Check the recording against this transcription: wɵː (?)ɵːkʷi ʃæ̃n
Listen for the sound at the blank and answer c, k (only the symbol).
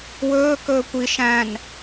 k